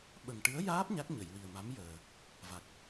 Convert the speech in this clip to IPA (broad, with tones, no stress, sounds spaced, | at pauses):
ɓ ə˨˩ ŋ ʈ ɨ˧˥ ə̯ j aː˦˥ p̚ ɲ a˦˥ k̚ ɲ ə˨˩˨ j w i˨˩ ə̯ m a˧˥ m j əː˨˩ | v a˨˩ k̚